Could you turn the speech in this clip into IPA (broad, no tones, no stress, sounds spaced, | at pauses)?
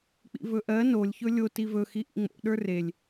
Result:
k͡p ḭ v ɵ ʔ ɜ n o lʲ ç ɵ lʲ o t i v ɵ x i ʔ ḭ ŋ͡m o̰ ɗ ə˞ r e lʲ